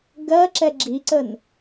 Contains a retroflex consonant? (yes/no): no